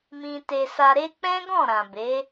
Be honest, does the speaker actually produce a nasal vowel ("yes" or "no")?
yes